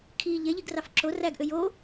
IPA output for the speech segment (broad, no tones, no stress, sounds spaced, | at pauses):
kʰ i ʎ e ʎ i ɡ r ɑ f ǁ o r æ ɡ ʔ ø j o